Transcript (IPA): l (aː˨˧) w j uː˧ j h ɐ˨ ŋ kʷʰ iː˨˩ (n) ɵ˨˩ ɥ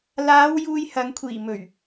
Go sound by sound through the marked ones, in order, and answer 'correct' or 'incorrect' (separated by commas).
correct, incorrect